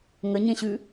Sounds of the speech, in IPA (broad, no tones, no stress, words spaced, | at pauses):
ŋəɲẽɕʉ